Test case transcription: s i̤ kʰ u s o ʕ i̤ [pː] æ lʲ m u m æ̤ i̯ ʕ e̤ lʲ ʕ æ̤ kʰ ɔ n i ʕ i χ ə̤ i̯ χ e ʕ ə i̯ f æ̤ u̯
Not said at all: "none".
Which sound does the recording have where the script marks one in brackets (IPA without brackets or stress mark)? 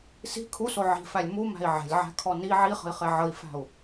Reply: f